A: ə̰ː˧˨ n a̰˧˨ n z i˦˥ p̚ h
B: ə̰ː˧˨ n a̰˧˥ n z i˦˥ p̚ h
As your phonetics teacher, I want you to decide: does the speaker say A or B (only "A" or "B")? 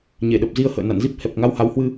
A